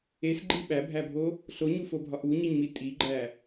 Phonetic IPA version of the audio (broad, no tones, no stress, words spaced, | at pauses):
esɡ͡ǃi ɓæbʱæbʱo | ɬoɲufobʱɒʔ uɲiɲmi tʼiɡ͡ǃæ